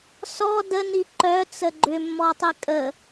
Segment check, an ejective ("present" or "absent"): present